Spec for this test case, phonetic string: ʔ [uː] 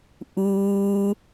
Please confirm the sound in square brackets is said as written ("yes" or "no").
yes